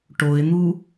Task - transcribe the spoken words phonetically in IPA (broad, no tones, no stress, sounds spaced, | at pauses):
ʈ o ɪ̯ n̪ u